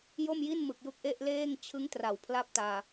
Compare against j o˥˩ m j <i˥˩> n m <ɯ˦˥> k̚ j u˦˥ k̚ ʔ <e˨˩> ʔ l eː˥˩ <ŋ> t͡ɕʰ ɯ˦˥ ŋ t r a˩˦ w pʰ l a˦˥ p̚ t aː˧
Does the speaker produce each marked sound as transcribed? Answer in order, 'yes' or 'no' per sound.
yes, no, no, yes

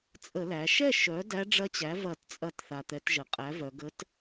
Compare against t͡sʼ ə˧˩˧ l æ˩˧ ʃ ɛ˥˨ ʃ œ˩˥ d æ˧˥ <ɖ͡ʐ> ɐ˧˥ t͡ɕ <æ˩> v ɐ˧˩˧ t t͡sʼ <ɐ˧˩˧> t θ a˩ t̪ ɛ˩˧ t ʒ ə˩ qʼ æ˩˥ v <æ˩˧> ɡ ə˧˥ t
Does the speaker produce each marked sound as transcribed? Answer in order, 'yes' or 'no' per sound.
yes, no, yes, no

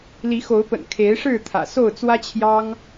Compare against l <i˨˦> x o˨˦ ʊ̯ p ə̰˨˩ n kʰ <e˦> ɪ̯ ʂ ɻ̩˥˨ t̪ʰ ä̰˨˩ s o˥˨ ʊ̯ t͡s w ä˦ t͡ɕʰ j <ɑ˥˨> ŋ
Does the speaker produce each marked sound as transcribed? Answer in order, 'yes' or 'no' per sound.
yes, no, no

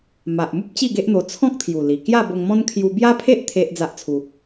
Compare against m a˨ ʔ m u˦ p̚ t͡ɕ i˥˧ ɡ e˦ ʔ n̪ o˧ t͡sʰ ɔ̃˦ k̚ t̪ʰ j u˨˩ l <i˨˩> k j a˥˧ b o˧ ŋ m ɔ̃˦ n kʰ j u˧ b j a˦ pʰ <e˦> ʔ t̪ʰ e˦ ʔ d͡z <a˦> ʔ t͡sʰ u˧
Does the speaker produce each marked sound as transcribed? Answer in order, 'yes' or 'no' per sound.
yes, yes, yes

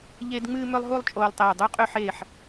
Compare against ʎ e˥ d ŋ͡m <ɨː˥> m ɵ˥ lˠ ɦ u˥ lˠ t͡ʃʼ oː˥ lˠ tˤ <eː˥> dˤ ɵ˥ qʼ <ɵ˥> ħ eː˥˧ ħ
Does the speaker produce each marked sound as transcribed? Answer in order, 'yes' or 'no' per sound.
yes, no, yes

